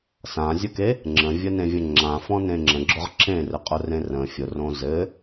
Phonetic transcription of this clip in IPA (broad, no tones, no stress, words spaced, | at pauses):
sãzʲʊke | ŋ͡ǁə̃vʲənẽvʲə̃ ŋ͡ǁãfɔ̃ nẽŋ͡ǁə̃ɡ͡ǁʊʁ ǁẽrɘ qʼʊrẽrə̃ fʲʊ rõzɘ